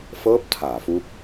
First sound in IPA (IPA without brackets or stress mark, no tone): f